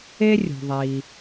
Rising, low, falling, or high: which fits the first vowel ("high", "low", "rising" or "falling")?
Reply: high